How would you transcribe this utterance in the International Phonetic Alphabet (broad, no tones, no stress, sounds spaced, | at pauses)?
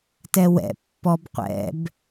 t ɛ w ɛ̰ pː ɔ b qʷ ɛ̰ b